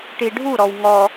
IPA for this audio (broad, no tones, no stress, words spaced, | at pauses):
ʈiɖʱuɾɔw ŋɔ